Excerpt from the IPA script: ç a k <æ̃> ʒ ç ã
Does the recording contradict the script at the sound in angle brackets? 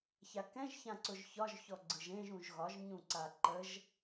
yes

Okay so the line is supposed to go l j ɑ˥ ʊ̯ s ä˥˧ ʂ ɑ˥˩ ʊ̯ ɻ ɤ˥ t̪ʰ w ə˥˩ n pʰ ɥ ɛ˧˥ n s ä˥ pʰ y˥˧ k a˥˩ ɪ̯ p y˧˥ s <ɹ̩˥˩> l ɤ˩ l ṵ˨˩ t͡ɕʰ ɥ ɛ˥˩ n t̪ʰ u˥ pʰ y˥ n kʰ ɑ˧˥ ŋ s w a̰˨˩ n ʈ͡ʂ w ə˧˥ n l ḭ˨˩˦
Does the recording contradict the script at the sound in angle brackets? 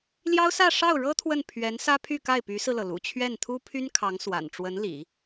yes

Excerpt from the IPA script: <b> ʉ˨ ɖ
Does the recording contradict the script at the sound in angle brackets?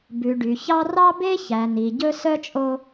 no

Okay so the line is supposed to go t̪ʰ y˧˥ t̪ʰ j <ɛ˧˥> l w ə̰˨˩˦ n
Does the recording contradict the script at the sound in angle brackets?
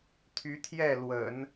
yes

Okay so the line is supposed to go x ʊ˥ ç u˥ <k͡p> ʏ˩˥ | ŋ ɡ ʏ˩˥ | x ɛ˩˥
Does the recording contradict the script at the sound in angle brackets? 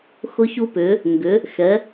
yes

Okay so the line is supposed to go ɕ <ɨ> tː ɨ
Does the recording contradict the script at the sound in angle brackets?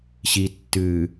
yes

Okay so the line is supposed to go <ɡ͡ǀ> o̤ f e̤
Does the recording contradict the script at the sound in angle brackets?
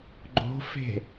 yes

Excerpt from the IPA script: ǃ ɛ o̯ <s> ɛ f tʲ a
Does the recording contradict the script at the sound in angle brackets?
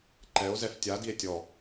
yes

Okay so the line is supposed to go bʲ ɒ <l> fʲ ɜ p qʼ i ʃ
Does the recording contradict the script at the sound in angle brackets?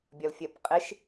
no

